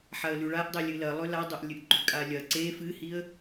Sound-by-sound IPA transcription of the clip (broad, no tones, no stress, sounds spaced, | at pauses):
ħ a ə̯ l ʉ ɭ a ʔ dˤ e lʲ ɨ l ɐ lˠ ɵ l a dˤ o ʔ lʲ ɨ ʔ ɡ͡ǃ ʉ kʼ a lʲ ɐ ǀ e f ɨ h i ə̯